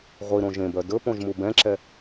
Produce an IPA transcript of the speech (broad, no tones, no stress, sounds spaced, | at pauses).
ʁʷ i ɾ õ ʒ ẽ b œ d ɵ p õ ʒ m u b ɛ̃ ǁ ɛ